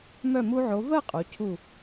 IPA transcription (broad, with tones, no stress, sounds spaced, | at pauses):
m œ˧˩ m u˧ ʕ o˩˧ v ɜ˥˧ qʼ o˩˧ cʰ u˧˩